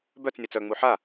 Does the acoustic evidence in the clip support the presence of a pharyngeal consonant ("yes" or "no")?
yes